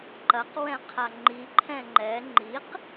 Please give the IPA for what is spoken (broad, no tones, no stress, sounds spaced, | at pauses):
ǃ ɐ q w ɛ̃ qʰ a ŋ͡ǃ i ǃʰ ɛ̃ ŋ͡ǃ ɛ ŋ͡ǃ i q